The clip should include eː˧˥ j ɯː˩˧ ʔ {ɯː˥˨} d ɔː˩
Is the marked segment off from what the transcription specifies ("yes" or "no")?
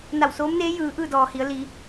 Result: no